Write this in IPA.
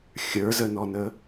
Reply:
xʲ ə˞ z ə n ɔ n ə

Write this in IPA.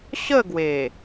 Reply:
ɕ ə˥˧ ɡ w e˨˩

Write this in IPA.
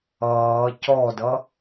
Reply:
ʌː c ɔ d ʌ

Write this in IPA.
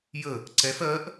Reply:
j ə | ǀ ɛ f ɜ ʔ

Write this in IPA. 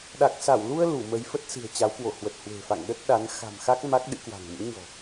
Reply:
ɗ a˨˩ k̚ s a˧˩ w l u˧ ə̯ l u˧˩ m ə˨˦ j f ə˦˥ t̚ s ɨ̤˨˩ ə̯ t͡ɕ a˨˦ w k w o˧˩ h w ə˨˩ t̚ h w e̤˨˩ f a̰˧˨ ŋ ɗ ə˦˥ t̚ ɗ a˨˦ n x a̤˨˩ m x a˦˥ k̚ m a˦˥ k̚ ɗ ɨ̰˧˥ k w a̤˨˩ ŋ m ṵ˧˥ ɲ ɔ̤˨˩

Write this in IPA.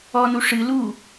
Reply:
ɔ n u ʂ ɨ l u

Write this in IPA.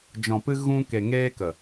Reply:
d͡ʒ ɔ̃˨ p ɨ˧ ɣ ũ˧ k e˨ ŋ eː˧ k ə˨

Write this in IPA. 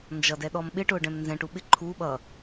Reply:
n d͡ʒ ʌ d ɛ ɗ ɔ m ɓ ɪ ʈ ʊː ɖ ɛ̃ m n z ɛ̃ ʈ u ɓ ɪ ǃʰ u ɓ ʌ

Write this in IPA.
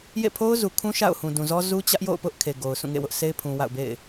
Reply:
j ḛ˦˨ pʰ o˦ ʊ̯ z u˨ kʰ ũ˦ ʃ a̰˦˨ ʊ̯ h ũ˨ d ũ˨ z ɔ˦ z u˦ t͡ɕ ä˦ ʔ j o̰˦˨ ʊ̯ p ʊ˦ ʔ kʰ e˨ ɡ o˨ ʊ̯ sʰ ũ˦˨ ŋ ḛ˦˨ w ʊ˦ ʔ s e˦ ɪ̯ pʰ ũ˨ w a̰˦˨ ʊ̯ b ḛ˦˨ ɪ̯

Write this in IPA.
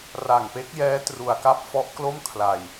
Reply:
r a˨˩ ŋ p e˦˥ k̚ j ɛː˦˥ t r u˧ a̯ k a˥˩ p̚ f ɔ˦˥ ʔ k l o˥˩ m kʰ l a˧ j

